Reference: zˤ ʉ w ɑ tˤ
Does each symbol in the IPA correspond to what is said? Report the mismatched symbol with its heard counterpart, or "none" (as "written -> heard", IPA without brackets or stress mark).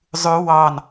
tˤ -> n